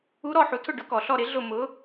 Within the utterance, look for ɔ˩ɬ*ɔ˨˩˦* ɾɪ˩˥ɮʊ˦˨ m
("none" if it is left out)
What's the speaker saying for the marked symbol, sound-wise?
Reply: ɔ˦˨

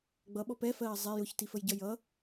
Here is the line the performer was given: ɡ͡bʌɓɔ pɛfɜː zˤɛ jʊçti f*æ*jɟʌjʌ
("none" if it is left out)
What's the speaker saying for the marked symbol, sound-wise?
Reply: ə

